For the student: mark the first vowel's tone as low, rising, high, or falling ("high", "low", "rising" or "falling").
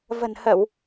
low